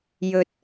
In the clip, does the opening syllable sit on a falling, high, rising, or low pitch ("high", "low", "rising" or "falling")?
high